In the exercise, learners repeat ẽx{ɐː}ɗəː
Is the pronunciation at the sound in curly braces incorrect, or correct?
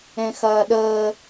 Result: correct